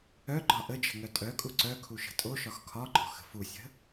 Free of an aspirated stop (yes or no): no